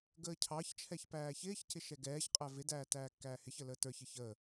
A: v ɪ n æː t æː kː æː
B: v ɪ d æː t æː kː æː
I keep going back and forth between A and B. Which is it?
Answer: B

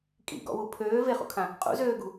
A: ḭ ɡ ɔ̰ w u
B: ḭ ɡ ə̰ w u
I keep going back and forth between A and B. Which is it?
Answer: A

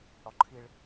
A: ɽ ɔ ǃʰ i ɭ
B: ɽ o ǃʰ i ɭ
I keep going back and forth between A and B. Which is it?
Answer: A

